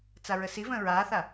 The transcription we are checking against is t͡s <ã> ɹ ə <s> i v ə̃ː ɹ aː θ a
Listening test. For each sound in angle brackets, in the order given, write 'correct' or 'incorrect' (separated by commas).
incorrect, correct